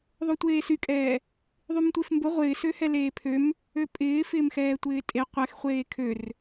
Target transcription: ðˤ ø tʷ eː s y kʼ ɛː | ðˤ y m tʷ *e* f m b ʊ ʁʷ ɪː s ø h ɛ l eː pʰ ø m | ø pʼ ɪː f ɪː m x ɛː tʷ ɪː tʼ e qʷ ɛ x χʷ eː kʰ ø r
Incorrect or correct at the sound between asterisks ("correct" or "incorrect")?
correct